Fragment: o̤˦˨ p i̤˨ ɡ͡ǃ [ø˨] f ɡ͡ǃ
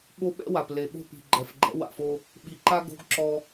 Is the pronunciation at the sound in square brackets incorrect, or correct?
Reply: incorrect